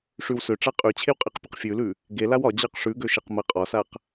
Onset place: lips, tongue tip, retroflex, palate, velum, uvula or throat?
retroflex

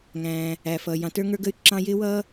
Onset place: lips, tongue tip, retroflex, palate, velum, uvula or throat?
velum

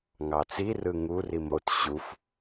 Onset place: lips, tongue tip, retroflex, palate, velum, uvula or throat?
velum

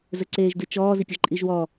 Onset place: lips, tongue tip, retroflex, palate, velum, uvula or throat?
tongue tip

